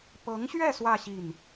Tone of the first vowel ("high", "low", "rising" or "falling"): rising